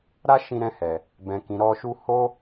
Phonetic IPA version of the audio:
ɾa˦ʃĩ˧ɾɛ̃˧hɛ˨ | bɛ̃˨kĩ˨ɾɔ˧ʃu˦ ho˦

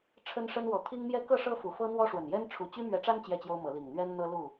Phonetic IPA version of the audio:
ʈ͡ʂʰə˦nʂə˦nwɔ˨˦ t̪ʰi˦ŋmjɛ˦ kɤ˥˨ʂɤ˦ fu˨˩fɤ˦n̪wɔ˦ʂwə˨˩n jɛ˦nʈ͡ʂʰu˨˩ t͡ɕy˦mɥɛ˨˦ʈ͡ʂa˦n t͡ɕjɛ˥˨t͡ɕjo˦ʊ̯mɤ˨˦ li˨˩ŋn̪ɥɛ˦nn̪ɤ˦ lu˥˨

